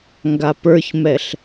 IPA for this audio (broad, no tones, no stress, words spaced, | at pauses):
ŋɡapə˞çmɛɬ